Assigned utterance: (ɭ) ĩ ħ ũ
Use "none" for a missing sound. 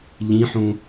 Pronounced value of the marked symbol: ʎ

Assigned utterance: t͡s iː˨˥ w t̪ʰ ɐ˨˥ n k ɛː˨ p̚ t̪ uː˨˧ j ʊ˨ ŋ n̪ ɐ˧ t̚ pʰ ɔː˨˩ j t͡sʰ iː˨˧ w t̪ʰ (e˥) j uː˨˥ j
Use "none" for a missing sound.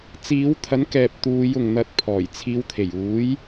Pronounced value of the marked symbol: e˨˩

